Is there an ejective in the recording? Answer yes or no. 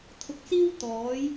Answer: no